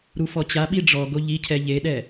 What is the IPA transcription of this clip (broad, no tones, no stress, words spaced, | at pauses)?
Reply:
ɾufɔt͡ɕa ɓiɖ͡ʐɔɡo ʎicʰɛ ʎeɗɛ